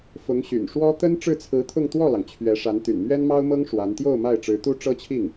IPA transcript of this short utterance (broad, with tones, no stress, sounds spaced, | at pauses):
f ʊ˧˥ ŋ ɕ y̰˨˩ n ʂ w ɔ˥ t̪ ə˥ n ʈ͡ʂ ɻ̩˥˩ t͡sʰ ɹ̩˧˥ t̪ʰ ʊ˥˧ ŋ t̪ w ɔ˥˩ l ɑ˩ ŋ t͡ɕʰ ɥ ɛ˧˥ ʂ a˧˥ n t̪ y̰˨˩ n m ɥ ɛ˥ n m ɑ˥ ʊ̯ m ɤ˥ ŋ ʂ w a˧˥ n t̪ j o˥˧ ʊ̯ m a˥˩ ɪ̯ ʈ͡ʂ ɻ̩˧˥ t̪ u˥ ʈ͡ʂ ɤ˥ t͡ɕʰ i˥˩ ŋ